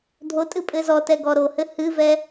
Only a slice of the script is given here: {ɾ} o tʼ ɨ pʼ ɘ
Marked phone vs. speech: incorrect: dʱ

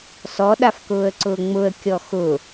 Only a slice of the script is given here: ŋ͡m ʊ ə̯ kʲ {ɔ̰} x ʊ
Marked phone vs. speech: incorrect: ɔ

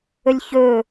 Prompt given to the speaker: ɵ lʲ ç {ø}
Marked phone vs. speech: incorrect: ɵ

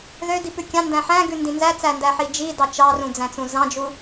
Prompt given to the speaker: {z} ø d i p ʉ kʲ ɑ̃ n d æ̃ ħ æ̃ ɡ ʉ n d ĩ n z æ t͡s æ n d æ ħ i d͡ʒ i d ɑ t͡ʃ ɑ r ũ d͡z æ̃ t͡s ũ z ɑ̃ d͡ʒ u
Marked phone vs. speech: incorrect: ð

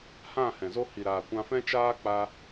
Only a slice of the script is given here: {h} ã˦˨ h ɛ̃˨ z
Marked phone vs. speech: correct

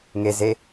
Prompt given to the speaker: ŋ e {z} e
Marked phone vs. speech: correct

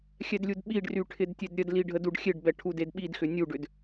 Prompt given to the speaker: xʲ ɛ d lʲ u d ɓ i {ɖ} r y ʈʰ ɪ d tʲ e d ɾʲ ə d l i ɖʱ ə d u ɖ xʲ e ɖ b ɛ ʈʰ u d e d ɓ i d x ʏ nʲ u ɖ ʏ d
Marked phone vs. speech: correct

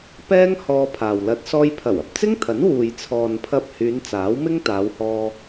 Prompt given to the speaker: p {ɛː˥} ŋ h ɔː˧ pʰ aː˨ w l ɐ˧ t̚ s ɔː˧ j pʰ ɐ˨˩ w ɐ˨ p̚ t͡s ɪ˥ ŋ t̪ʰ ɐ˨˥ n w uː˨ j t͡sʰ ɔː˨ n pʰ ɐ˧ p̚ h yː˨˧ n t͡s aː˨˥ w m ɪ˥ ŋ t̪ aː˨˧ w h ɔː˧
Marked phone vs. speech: correct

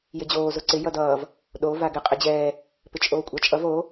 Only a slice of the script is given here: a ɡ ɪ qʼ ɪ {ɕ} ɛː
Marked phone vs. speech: incorrect: d͡ʑ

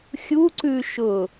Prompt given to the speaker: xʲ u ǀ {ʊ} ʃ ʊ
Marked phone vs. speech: incorrect: ʉ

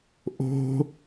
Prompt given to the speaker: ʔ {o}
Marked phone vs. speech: incorrect: o̤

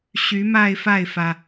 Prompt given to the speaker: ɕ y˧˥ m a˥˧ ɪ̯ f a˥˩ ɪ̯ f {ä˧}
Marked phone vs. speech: incorrect: ä˩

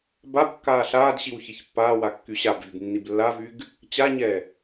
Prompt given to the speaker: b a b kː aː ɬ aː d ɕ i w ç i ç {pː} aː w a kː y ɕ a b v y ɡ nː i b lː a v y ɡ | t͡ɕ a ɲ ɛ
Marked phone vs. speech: correct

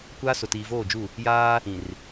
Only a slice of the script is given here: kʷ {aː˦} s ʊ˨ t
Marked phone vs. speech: correct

